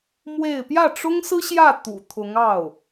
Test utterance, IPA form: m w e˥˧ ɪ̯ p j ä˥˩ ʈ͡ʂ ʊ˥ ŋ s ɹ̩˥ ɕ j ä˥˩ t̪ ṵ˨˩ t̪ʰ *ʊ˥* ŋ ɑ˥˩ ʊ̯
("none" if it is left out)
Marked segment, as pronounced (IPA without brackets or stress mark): ʊ˧˥